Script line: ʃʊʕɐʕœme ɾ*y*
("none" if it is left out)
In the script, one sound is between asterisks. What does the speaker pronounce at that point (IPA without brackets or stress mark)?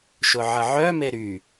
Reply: y